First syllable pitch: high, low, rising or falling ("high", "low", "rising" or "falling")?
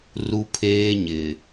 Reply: high